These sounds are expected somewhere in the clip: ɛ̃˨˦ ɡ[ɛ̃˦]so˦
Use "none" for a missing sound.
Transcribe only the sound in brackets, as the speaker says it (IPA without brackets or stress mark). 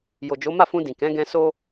ɛ̃˧